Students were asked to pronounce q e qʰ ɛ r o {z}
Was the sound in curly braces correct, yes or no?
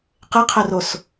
no